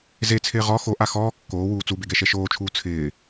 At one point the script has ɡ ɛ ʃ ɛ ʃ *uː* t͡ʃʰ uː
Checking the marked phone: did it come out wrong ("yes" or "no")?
yes